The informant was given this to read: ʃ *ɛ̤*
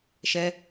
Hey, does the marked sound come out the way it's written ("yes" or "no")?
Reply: no